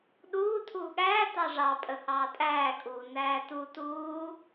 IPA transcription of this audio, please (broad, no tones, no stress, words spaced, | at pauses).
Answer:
ɗuː tʰuːɠæː tɑʐɑpʼə hɑːtʼæːkʼuː næːtu tuː